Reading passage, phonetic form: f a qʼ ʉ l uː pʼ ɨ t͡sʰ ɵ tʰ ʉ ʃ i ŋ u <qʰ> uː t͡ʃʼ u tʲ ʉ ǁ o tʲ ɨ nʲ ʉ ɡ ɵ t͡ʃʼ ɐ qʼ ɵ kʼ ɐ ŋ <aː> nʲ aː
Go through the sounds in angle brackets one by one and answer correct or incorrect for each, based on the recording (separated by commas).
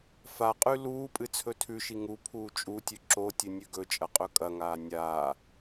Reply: incorrect, correct